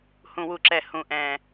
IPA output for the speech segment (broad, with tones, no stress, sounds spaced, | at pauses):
h ũ˧˩˧ w u˨˩ ǁ ɛ˧˩˧ h ũ˨˩ ʔ ɛ̃˨˩